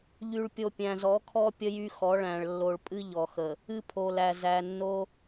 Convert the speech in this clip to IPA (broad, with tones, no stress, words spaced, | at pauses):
ʎy˨ɭpʲo˨ pʲæ̃˨zɔ˨˦kʰɔ˦ pʲə˦jy˦xɔ˨˦ ɭæ̃˨ɭ lːo˨ɭpʼɨ˦ ʎɔ˨xə˨ | ɨ˦pʰo˨læ˨ zæ˨nːo˦